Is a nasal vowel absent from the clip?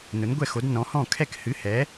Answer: no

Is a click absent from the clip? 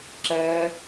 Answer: no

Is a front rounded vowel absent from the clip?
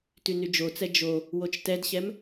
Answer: no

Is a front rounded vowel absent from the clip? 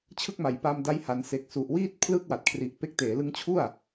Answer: yes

